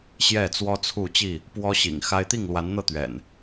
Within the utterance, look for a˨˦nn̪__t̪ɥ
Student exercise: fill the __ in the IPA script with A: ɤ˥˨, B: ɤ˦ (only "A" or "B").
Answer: A